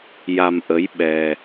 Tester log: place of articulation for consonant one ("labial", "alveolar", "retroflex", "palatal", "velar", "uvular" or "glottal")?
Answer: palatal